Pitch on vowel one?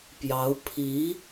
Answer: rising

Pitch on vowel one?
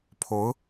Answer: rising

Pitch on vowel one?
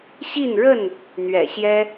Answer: falling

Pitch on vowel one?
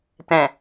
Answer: low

